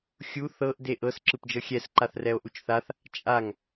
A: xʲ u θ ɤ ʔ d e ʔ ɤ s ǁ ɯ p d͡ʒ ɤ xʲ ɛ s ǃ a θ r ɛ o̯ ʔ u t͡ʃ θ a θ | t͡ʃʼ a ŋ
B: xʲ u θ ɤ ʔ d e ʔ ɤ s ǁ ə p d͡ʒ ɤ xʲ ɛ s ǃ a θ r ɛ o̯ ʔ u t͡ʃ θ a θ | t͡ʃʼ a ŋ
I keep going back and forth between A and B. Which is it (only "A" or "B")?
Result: A